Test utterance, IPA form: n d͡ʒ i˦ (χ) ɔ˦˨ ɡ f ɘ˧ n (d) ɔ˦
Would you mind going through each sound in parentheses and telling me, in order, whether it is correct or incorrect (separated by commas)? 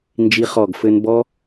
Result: correct, incorrect